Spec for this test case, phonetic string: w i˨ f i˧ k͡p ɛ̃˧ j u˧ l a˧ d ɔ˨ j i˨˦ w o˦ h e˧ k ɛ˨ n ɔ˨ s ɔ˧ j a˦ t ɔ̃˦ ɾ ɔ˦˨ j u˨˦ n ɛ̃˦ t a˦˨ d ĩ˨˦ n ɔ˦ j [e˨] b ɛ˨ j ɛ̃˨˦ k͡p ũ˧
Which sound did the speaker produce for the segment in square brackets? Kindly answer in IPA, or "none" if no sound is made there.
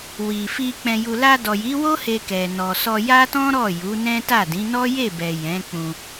e˦˨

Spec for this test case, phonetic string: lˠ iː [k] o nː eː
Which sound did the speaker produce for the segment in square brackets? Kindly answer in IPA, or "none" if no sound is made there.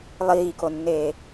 k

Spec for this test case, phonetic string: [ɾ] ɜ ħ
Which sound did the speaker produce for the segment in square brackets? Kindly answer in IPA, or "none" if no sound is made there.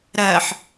ɾ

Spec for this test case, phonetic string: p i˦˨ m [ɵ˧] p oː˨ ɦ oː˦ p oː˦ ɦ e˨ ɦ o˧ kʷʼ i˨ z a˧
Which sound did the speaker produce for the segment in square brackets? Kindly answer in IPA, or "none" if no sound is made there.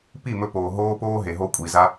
ɵ˧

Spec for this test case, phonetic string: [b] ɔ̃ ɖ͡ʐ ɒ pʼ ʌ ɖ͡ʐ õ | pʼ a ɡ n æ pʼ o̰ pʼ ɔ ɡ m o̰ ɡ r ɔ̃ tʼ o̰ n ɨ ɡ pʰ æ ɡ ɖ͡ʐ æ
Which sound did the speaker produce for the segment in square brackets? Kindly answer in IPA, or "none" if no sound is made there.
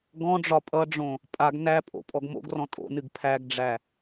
ɡ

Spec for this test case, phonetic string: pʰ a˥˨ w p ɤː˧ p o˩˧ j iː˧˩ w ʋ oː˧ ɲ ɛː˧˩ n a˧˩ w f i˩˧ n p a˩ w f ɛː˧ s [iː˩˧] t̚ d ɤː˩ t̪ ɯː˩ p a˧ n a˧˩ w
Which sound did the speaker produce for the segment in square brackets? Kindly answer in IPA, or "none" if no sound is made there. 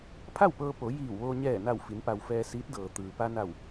iː˧˥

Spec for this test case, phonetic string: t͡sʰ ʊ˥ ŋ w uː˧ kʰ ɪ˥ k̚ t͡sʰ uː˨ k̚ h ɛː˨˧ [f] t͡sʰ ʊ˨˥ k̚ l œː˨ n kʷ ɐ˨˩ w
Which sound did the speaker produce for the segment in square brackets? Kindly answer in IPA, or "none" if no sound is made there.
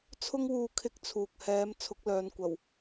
m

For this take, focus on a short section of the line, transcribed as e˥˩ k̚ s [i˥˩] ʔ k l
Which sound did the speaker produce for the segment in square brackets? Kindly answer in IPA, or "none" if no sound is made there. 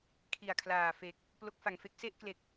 e˥˩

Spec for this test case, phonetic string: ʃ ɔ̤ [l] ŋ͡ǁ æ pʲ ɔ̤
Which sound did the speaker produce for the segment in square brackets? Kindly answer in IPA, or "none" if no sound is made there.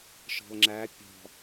l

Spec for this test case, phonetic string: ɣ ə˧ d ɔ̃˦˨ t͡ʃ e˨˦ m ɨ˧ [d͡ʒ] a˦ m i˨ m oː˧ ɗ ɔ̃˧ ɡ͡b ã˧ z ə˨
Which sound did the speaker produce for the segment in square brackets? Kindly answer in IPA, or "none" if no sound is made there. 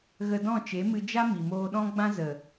d͡ʒ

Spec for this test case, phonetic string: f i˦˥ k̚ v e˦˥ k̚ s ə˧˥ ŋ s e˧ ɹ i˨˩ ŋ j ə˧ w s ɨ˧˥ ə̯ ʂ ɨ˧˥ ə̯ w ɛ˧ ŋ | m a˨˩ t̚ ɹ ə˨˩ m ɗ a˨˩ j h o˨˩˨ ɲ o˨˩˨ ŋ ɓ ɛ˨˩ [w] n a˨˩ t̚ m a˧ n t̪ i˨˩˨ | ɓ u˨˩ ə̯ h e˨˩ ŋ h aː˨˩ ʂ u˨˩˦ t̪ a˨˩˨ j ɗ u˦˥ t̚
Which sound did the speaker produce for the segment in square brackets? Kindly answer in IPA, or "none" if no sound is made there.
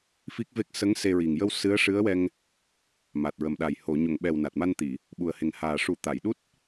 w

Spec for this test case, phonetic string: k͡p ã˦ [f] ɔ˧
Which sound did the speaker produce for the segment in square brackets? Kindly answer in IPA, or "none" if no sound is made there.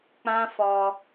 f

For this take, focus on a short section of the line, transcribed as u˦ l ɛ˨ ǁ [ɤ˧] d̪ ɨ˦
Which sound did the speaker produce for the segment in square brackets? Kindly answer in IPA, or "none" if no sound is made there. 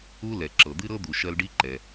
ɤ˨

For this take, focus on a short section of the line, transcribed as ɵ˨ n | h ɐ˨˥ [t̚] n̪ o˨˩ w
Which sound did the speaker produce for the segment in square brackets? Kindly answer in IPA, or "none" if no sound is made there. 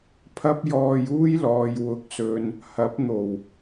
p̚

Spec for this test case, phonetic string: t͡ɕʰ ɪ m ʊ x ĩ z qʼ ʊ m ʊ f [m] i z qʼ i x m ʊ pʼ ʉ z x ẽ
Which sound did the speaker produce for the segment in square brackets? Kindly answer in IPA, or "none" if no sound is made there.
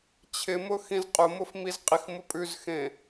m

